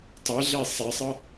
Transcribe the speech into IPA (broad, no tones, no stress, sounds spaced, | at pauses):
tˤ e ɮ e sˤ e sˤ ɤ